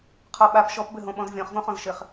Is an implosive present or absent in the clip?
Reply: present